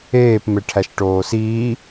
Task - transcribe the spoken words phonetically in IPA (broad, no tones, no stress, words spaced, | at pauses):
eːp meʈʰæʃʈoːsiː